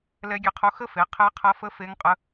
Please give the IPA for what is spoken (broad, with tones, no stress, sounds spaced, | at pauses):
l ɛ˦˥ ɡʲ ɛ˦˥ qʰ o˦˥ x ə˦˥ f e˨˦ qʰ ɛ˦˥ qʰ ɐ˦˥ f ə˦˥ f e˦˥ ŋ qʼ ə˦˥